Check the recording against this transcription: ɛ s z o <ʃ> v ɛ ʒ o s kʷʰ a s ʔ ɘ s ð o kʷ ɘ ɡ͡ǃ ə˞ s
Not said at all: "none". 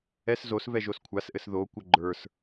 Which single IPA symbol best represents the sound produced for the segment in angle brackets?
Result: s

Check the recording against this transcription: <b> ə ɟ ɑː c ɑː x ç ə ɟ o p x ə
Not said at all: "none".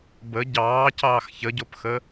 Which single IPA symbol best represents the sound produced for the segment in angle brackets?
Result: b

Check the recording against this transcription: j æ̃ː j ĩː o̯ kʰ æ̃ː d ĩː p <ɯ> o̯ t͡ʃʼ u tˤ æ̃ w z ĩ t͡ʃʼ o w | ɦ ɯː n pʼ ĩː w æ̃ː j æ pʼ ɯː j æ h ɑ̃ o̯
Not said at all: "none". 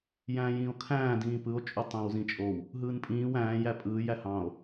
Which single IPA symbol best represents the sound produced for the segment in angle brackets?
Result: ɯ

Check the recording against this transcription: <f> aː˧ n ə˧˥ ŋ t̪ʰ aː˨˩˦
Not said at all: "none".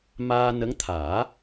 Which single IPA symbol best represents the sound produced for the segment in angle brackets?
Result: m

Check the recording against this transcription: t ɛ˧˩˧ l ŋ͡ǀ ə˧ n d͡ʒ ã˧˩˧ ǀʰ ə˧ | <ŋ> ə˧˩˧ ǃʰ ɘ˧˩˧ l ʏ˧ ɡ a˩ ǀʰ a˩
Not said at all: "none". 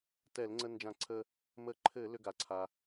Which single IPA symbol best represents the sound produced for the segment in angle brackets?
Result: m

